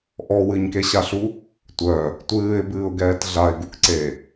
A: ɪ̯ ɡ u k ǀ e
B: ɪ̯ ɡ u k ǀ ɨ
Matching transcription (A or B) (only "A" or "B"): A